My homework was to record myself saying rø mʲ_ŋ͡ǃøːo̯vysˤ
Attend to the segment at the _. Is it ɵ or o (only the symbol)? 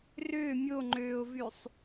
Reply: o